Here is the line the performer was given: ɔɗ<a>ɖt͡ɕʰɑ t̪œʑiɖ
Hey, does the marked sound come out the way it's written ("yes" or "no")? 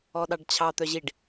no